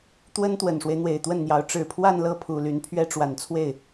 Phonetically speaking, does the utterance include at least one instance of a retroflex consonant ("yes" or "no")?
yes